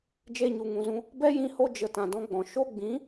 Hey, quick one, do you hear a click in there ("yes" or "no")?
no